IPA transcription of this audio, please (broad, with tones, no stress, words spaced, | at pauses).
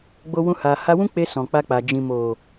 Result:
ɡ͡bo˧wũ˧ ha˨ha˧wũ˦k͡pe˧ sɔ̃˨k͡pa˧k͡pa˨ d͡ʒĩ˨mo˨